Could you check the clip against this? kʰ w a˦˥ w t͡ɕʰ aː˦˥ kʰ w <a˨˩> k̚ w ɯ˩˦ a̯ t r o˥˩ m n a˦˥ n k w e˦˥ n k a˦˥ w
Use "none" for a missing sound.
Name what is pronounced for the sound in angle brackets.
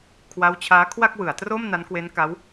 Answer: a˥˩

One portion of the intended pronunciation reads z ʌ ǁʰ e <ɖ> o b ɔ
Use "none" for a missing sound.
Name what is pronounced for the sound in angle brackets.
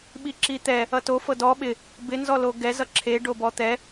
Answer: ɖ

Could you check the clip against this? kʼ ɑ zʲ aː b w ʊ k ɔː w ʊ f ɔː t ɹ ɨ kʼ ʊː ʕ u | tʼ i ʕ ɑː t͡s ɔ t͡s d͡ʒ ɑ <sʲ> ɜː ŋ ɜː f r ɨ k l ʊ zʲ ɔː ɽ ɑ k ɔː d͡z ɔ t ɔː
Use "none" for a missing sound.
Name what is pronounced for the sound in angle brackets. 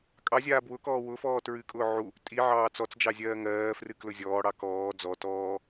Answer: zʲ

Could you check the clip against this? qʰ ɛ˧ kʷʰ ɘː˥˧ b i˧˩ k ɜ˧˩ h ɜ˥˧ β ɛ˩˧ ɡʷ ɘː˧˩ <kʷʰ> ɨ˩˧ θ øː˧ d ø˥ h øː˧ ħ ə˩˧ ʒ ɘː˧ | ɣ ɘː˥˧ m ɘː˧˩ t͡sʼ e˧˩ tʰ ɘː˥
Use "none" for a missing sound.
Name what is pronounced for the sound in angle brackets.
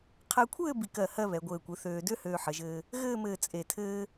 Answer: kʷ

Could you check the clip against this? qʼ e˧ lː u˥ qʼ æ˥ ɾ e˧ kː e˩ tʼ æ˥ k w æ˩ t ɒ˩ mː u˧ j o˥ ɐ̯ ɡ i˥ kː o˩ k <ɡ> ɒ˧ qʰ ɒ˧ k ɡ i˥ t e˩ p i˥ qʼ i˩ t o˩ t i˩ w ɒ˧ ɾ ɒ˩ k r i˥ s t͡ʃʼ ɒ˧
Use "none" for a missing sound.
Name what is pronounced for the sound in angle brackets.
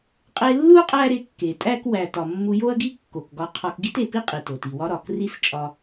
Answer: ɡ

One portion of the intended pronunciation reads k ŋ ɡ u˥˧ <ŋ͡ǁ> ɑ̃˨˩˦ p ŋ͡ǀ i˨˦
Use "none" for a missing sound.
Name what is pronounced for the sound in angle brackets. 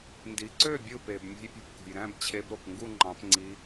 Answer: ŋ͡ǃ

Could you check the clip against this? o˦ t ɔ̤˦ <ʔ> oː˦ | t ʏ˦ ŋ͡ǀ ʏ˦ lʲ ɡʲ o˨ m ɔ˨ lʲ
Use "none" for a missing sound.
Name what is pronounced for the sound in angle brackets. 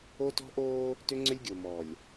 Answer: ʔ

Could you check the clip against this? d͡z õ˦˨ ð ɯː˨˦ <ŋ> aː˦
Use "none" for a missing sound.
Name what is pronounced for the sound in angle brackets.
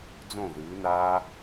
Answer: n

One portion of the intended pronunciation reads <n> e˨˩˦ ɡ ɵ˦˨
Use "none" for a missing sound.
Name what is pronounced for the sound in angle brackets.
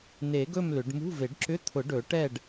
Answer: n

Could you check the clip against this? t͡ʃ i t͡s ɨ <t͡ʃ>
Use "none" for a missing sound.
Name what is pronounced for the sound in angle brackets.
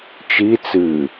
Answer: none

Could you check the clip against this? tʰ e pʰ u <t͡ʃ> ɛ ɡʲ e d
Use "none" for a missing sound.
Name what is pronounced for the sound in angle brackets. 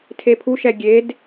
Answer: ʃ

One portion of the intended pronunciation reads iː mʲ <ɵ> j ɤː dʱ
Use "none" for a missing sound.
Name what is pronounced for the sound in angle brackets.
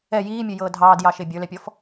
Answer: ɵ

